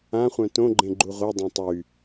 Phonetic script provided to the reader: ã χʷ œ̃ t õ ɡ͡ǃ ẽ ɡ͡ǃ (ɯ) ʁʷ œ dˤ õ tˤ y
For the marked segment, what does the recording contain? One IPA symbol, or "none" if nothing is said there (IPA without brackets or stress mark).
u